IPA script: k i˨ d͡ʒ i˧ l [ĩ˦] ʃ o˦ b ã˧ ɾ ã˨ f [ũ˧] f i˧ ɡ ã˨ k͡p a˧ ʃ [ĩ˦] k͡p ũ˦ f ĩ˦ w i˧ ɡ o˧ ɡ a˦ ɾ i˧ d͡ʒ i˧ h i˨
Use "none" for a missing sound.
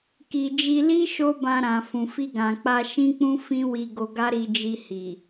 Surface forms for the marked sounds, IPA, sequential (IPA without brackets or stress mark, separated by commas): i˦, ũ˨, ĩ˦